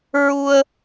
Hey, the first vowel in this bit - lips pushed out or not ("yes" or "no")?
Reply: yes